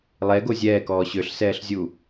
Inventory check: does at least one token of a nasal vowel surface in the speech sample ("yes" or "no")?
no